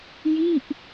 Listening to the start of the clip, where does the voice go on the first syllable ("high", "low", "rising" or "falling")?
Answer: falling